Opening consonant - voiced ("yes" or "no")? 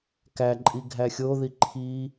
no